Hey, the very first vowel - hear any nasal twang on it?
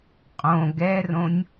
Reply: yes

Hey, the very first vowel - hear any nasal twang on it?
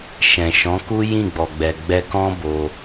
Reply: yes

